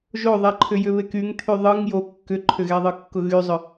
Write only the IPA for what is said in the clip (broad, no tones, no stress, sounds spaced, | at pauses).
ʒ o ðˤ ɛ ǃʰ ʏ j ʏ β e k y ŋ t̪ʰ y ðˤ ɯ ŋ j o kː ʏ ǃʰ ʏ ɣ ɛ ðˤ ɯ kː ʊ ɣ y zˤ ʏ